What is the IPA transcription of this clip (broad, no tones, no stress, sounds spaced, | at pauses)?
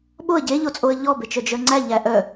ɓ o ə̯ ɟ e ʎ o t͡sʼ o ə̯ ʎ ɔ b e t͡ʃ œ d͡ʒ œ ŋ͡ǀ æ ʎ æ ʔ œ